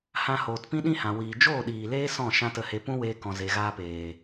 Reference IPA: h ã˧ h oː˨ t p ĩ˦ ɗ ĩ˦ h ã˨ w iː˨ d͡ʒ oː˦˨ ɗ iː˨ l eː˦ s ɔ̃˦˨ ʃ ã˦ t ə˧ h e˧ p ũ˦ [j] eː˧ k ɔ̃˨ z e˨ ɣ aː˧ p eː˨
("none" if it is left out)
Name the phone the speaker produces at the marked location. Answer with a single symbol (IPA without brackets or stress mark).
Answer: w